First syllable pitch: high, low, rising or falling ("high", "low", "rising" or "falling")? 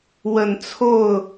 low